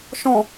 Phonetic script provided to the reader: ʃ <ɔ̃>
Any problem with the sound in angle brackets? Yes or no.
no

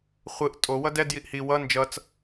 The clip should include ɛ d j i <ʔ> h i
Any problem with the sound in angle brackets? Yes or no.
no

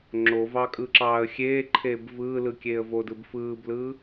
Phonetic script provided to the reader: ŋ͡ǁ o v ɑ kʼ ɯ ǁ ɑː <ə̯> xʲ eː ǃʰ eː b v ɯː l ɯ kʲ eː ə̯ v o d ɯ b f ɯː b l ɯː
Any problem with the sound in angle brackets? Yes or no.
no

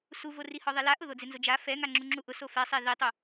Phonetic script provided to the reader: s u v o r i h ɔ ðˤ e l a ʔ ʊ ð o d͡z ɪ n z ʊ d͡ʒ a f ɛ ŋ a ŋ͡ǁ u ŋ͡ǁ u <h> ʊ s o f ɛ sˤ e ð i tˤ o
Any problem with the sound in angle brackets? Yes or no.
yes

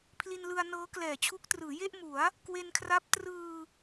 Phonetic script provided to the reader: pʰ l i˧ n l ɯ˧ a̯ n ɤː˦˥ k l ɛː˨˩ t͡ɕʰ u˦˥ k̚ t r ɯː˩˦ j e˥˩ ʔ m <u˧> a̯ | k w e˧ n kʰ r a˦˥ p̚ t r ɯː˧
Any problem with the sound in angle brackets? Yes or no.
yes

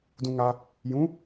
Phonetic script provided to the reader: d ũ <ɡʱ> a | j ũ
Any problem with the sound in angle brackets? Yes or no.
yes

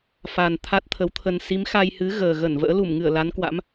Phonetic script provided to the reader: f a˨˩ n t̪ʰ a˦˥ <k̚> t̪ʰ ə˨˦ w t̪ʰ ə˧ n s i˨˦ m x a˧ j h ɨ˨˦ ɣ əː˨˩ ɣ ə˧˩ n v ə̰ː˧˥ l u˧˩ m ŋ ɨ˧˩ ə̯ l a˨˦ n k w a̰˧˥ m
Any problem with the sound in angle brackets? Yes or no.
yes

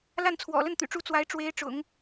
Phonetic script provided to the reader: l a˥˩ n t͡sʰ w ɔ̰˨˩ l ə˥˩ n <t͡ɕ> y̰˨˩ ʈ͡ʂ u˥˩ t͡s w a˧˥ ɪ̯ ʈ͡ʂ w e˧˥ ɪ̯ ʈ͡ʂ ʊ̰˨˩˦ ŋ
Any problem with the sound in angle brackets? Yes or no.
yes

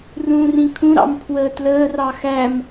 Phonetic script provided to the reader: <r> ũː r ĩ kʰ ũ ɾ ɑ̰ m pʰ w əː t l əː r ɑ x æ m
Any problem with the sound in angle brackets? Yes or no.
no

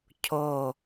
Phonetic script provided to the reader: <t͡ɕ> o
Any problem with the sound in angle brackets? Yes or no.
yes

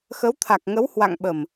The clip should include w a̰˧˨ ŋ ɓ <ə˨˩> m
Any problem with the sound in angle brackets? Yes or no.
no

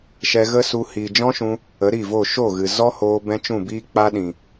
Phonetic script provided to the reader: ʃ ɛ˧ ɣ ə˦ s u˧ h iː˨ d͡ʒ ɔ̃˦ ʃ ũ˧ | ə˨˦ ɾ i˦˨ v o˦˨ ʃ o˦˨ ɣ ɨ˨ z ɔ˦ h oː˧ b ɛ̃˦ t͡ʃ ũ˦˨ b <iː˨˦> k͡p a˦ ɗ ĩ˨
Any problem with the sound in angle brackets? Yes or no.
yes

